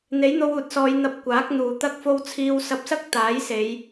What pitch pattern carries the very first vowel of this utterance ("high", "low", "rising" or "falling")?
rising